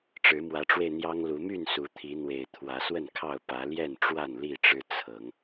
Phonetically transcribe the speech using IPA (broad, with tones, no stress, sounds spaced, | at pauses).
ʈ͡ʂ ɻ̩˨˦ m w ä˨˦ ʈ͡ʂ w e˧ ɪ̯ n̪ j ɑ˦ ŋ l u˨˦ m y˥˨ n s u˨˦ t̪ʰ i˨˦ n̪ w e˨˩ ɪ̯ t̪ʰ w ä˨˦ s w ə˥˨ n kʰ ɑ˥˨ ʊ̯ p ä˨˦ l j ɛ˥˨ n ʈ͡ʂ w a˥˨ n l i˥˨ ʈ͡ʂ ɻ̩˦ t͡sʰ ɤ˨˦ ŋ